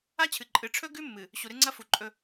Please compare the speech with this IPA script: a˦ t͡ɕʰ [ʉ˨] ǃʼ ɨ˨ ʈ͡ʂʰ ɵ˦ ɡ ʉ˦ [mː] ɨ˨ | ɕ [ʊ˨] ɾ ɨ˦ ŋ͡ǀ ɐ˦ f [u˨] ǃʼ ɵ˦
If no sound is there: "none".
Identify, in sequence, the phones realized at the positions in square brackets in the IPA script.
ɨ˨, mː, u˨, u˨

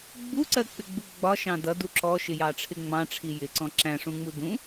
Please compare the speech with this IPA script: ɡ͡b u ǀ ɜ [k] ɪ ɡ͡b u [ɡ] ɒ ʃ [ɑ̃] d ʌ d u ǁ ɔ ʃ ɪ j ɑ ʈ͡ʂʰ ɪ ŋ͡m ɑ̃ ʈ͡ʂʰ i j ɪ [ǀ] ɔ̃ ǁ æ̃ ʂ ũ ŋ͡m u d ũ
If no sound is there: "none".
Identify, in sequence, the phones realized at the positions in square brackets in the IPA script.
k͡p, ɡ͡b, ɑ̃, ǀ

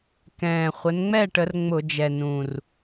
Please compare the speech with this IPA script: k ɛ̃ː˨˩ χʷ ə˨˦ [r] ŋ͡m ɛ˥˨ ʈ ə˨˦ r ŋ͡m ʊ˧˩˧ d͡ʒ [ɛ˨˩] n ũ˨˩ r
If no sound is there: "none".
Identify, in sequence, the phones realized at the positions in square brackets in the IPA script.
n, ɛ˨˩

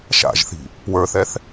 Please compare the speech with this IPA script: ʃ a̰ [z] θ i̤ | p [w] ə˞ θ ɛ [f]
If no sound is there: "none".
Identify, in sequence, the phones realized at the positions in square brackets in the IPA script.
ʒ, w, θ

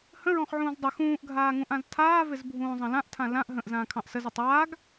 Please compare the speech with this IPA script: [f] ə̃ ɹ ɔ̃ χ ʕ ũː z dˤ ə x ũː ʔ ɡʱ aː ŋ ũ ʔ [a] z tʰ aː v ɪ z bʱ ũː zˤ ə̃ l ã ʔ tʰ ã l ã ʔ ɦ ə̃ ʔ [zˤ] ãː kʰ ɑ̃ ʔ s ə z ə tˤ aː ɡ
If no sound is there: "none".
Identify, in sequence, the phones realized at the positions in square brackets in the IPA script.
h, ã, z

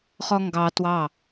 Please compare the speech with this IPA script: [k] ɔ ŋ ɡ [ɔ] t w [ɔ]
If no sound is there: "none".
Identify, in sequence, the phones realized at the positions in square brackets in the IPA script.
χ, ɑ, ɑ

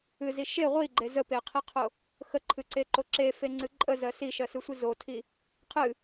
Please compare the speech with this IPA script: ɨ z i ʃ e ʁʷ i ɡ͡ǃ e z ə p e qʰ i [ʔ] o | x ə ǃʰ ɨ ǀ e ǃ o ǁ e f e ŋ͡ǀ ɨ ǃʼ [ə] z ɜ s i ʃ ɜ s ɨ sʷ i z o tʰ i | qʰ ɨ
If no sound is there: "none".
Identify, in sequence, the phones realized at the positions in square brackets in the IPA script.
qʰ, ə

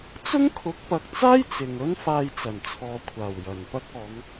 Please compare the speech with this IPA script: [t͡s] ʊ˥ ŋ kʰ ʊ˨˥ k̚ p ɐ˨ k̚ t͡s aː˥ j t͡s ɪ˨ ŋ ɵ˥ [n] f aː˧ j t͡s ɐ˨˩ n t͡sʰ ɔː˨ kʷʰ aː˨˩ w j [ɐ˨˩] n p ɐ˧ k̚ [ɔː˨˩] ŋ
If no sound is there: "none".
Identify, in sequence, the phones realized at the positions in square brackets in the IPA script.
t͡s, n, ɐ˨˩, ɔː˨˧

